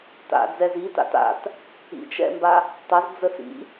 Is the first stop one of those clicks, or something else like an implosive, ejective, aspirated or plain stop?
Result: plain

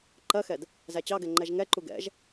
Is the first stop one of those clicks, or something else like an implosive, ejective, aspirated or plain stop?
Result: click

